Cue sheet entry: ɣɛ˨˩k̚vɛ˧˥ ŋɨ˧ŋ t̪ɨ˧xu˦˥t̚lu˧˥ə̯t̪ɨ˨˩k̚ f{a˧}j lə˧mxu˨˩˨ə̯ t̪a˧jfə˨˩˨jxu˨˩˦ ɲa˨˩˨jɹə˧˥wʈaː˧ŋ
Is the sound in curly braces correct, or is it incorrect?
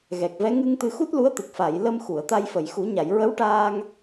incorrect